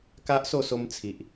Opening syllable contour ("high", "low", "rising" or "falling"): high